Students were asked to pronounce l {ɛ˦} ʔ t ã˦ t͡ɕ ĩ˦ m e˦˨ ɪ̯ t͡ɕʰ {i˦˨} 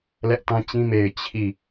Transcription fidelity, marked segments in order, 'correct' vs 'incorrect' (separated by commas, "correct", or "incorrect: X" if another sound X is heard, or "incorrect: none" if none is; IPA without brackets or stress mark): correct, correct